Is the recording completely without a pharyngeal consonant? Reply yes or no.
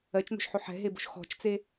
no